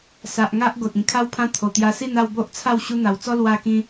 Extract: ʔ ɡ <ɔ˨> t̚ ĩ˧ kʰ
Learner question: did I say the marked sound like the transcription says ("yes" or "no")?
no